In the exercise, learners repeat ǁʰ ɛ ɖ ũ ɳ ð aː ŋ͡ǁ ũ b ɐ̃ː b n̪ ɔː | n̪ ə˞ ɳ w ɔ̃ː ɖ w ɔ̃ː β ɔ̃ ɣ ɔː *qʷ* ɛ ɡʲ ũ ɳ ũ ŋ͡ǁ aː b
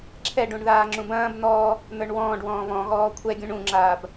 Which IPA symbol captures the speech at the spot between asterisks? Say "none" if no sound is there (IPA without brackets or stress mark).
kʷʰ